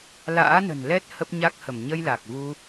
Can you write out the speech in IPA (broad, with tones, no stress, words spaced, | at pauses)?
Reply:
la̰ː˧˥nə̤˨˩n lɛ˦˥t̚ hə˦˥p̚ɲa˦˥k̚hə˧˩m ɲə˧jla˨˩k̚ vu˧